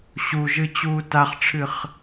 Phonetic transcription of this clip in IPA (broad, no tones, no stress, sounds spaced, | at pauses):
ɕ u ʒ ɨ t͡ɕ uː t a χ ʈ͡ʂʰ ɨ χ